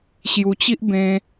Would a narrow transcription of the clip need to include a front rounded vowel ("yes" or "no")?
no